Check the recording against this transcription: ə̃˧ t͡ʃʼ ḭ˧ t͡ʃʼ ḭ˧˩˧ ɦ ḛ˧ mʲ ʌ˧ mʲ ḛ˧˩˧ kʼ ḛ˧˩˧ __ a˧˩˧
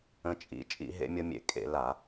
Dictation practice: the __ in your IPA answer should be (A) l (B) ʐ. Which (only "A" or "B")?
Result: A